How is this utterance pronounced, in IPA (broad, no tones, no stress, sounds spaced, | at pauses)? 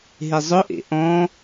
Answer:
ɦ e zˤ ʊ ʔ ḛ ʔ ɔ̃